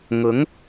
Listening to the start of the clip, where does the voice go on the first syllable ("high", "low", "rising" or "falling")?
rising